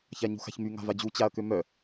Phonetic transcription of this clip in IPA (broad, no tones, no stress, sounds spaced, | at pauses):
ç a ɲ ṳ x a̤ ç m y ŋ a̤ v a d͡ʑ u t͡ɕ a ɐ̯ k ø m œ